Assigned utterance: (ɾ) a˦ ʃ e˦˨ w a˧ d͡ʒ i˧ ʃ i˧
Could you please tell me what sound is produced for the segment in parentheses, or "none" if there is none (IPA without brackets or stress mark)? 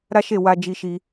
ɾ